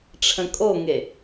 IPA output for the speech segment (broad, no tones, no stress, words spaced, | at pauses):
ʈ͡ʂʰə̃kʼoŋe